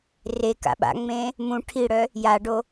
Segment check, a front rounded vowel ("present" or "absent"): present